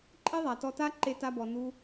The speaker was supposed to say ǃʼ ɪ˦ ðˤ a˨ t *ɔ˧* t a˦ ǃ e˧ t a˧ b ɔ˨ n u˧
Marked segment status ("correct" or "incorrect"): correct